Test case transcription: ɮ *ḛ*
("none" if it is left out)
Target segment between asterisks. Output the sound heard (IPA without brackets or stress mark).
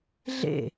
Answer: ḛ